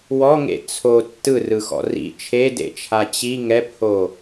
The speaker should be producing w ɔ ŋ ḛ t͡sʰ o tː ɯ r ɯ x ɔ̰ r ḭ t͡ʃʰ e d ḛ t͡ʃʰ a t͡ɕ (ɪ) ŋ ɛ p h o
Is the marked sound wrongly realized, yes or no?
yes